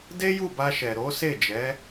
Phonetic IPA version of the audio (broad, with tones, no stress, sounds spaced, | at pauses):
d e˦ j u˦˨ b a˧ ʃ ɛ˨ ɾ o˨˦ s e˦˨ d͡ʒ ɛ˨˦